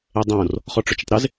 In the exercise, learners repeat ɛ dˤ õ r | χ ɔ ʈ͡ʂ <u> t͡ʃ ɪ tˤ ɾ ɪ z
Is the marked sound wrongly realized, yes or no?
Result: yes